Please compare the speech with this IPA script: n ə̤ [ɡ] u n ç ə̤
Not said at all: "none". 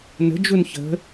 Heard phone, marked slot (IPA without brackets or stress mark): d͡ʒ